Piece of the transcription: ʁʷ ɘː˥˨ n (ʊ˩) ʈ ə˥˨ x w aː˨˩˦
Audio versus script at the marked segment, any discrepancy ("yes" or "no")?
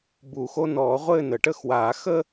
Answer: yes